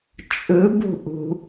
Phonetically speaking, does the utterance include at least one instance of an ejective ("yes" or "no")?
yes